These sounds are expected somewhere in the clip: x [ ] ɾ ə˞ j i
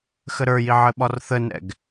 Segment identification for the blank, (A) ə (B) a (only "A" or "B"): A